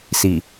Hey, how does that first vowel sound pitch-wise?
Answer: low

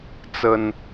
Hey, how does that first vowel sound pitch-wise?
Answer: low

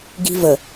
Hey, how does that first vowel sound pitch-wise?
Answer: high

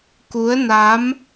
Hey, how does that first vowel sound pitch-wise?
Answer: rising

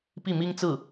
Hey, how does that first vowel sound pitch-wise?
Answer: falling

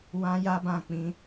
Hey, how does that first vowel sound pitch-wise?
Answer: high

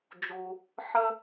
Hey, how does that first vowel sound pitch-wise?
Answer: low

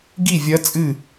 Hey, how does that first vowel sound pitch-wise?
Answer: falling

